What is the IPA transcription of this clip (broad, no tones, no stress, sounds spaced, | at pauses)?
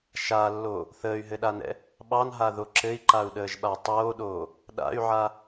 ʃ a lː o | θ əː y̯ ɦ ɘ ɗ a n ɛ̰ | ɓ ɑ n ɦ a ð o ǁ ɘ i̯ ǃ a u̯ ɗ əː ʒ ɓ a tˤ oː ɗ oː | ɗ a̰ y̯ ʕ a